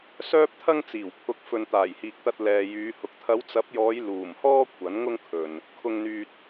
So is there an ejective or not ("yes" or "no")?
no